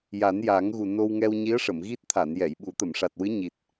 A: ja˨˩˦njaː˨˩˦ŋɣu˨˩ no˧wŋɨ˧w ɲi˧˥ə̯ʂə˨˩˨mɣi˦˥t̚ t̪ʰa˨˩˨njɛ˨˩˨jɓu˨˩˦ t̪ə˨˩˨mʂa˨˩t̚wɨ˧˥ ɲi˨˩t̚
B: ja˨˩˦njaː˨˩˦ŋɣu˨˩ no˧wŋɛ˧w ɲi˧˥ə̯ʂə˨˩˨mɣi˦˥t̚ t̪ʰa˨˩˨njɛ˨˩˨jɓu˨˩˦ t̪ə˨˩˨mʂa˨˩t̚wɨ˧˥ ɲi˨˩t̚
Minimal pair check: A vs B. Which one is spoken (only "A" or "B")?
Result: B